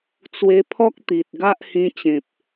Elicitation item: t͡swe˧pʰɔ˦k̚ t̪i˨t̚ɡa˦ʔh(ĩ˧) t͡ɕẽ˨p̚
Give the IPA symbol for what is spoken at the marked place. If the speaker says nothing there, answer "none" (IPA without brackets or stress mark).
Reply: ĩ˧